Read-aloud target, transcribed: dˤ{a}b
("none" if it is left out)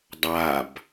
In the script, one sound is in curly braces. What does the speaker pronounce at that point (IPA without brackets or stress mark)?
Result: a